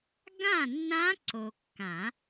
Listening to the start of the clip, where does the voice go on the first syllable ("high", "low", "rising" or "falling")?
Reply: falling